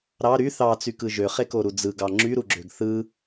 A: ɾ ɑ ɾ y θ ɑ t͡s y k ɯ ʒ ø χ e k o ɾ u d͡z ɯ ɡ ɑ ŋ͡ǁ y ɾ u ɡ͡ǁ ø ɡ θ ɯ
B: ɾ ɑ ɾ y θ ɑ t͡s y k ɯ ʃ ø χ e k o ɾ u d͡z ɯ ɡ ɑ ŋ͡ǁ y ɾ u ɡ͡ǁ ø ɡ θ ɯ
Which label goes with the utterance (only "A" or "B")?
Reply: A